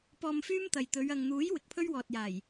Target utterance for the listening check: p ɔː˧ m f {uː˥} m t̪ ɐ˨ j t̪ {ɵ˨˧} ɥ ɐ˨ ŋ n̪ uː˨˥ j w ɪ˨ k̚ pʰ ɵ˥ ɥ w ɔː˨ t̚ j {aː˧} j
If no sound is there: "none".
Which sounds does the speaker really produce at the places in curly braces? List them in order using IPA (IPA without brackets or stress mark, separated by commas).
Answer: yː˥, ɵ˨˧, aː˨˩